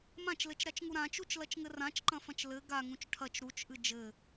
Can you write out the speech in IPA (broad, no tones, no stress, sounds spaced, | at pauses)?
m ã t͡ʃ l ɘ t͡ʃ ɾ a t͡ʃ ŋ u ɾ ã t͡ʃ u t͡ʃ l ɐ t͡ʃ ŋ ɘ r ã t͡ʃ ǃ ɐ̃ f ɐ̃ t͡ʃ l ɘ ɡ a ŋ ũ t͡ʃ ʈʰ ɐ t͡ʃ ɾ u t͡ʃ ʔ ɨ d͡ʒ ɘ